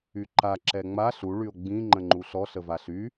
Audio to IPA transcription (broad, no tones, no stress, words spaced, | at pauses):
yǃa ǁɛŋ͡ma ɬu ɭyo̯ɡ͡bĩ ŋ͡ǃə̃ŋ͡ǃuɬɔ ɬəvaɬy